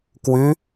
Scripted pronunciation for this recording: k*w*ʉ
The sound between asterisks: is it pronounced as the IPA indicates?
yes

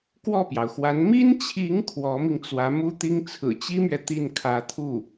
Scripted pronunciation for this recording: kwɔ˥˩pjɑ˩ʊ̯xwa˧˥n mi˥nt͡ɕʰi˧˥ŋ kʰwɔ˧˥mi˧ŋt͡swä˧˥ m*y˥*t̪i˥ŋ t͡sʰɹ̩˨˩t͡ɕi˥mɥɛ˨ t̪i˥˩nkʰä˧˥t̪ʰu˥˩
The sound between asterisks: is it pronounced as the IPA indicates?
no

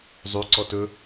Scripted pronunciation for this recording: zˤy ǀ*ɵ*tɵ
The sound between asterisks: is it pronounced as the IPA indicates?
no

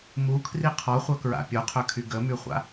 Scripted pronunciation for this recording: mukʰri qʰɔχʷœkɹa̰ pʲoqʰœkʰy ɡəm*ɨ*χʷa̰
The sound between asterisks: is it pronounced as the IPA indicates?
no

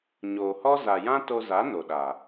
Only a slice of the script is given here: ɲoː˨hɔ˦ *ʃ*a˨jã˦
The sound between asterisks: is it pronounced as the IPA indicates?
no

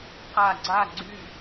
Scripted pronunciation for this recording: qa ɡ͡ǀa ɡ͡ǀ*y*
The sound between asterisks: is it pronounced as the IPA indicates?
yes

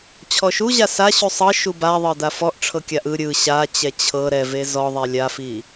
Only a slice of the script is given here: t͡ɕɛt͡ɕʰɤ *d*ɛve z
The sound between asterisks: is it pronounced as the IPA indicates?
no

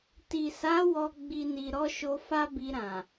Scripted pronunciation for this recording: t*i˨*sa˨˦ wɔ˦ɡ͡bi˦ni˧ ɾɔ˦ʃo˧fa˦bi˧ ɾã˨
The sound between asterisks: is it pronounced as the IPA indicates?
yes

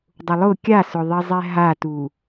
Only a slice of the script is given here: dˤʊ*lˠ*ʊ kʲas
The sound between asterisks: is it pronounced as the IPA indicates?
yes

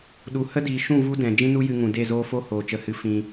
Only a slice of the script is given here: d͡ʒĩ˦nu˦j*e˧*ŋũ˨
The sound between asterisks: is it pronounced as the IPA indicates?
no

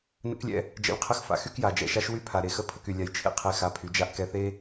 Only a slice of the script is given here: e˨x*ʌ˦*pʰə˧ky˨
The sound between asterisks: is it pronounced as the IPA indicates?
no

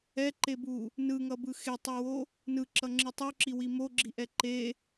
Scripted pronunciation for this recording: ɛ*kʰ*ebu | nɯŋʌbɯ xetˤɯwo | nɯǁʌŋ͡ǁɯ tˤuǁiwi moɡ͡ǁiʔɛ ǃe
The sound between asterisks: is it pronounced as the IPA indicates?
no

